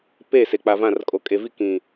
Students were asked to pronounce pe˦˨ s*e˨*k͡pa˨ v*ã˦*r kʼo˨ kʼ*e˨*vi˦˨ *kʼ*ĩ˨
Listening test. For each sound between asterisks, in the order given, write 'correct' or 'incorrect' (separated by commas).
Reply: correct, incorrect, correct, incorrect